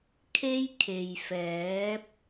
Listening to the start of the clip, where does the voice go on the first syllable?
high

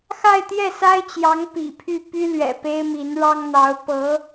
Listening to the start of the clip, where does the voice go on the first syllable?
falling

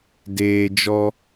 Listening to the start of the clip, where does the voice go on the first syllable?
low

